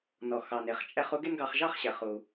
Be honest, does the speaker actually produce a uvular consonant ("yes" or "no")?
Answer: yes